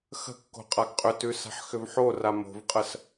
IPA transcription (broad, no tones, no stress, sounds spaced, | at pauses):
x ə̤ kː o̤ qʼ a ɡ qʼ ʏ t ʉ s a̤ ħ x ʏ v ħ o r a m o̤ v qʼ ə s